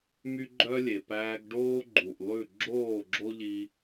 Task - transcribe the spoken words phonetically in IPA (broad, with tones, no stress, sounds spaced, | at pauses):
m y˦ ɡ͡ǃ œ˦ lʲ e˨ p æː˧ ɡ ɖ oː˦ ɡ͡ǃ u˨ ʔ lˠ ʉ˦˨ ɡ͡ǁ oː˦˨ ɡ͡ǁ o˦ ʎ i˧